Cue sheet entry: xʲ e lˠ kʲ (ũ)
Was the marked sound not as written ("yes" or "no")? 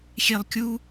yes